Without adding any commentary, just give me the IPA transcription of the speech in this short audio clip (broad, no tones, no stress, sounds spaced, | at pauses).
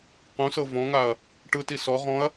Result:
q ũ s ɤ v ɔ̃ ŋ a ɐ̯ | ʈ ɯ t i s ɔ ʁ ɔ̃ ɐ̯